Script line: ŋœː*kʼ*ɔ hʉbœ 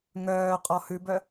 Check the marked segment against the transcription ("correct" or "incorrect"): incorrect